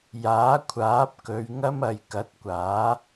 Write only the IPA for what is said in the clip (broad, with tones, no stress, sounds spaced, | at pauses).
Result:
j aː˨˥ kʷʰ aː˨˥ p̚ k ɵ˨˧ ɥ ŋ ɐ˥ m ɐ˨˧ j k ɐ˨˥ t̚ kʷ aː˨˥